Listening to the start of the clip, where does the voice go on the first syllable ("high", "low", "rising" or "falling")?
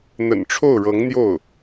low